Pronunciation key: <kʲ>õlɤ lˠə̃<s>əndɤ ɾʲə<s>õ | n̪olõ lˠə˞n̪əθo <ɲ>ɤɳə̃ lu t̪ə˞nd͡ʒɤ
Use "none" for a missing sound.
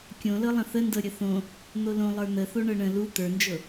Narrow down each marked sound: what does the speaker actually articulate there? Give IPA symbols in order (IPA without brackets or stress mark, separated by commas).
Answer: kʲ, θ, θ, ɳ